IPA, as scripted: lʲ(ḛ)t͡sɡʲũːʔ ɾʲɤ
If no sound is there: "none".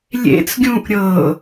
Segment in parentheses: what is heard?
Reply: ḛ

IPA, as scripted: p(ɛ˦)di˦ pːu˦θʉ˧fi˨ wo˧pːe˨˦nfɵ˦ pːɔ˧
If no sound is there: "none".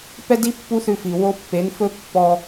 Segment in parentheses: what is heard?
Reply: ɛ˦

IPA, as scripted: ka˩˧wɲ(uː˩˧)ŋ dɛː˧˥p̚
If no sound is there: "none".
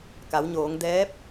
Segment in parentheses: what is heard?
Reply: oː˩˧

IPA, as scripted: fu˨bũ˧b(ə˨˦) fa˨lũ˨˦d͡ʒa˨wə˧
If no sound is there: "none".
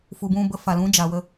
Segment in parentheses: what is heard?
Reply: ə˨˦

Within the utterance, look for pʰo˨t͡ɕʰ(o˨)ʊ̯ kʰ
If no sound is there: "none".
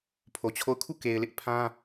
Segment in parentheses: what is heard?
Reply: o˦˨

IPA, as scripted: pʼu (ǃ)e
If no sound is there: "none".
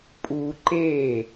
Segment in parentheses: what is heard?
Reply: ǃ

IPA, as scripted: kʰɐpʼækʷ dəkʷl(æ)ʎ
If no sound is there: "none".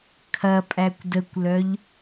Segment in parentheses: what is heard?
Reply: œ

